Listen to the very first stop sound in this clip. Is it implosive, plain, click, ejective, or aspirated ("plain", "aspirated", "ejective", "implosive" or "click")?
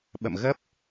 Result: implosive